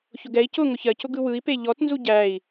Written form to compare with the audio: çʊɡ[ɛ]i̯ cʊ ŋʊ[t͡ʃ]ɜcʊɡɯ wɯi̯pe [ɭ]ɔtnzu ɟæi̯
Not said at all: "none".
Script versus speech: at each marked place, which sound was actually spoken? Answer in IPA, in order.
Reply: ɛ, ç, ʎ

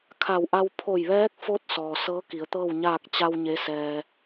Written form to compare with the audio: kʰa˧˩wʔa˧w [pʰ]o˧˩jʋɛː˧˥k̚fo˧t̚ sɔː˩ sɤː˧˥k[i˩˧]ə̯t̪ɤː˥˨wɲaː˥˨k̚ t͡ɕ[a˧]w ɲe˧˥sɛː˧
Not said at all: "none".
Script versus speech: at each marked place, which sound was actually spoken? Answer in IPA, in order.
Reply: pʰ, i˩˧, a˧

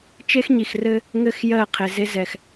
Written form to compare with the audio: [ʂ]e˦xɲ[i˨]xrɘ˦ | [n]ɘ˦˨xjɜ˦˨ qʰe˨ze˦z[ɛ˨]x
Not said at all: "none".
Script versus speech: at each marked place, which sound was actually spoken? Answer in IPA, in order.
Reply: t͡ʃ, i˨, ŋ, ɛ˨

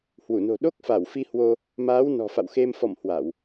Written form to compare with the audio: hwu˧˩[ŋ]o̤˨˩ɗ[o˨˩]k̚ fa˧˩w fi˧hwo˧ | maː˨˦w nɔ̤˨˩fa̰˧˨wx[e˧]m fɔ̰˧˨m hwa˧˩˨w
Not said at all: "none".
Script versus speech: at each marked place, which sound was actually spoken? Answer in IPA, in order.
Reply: n, o˦˥, e˧

